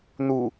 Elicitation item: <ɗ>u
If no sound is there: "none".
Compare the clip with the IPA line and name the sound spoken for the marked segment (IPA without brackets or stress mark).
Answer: n̪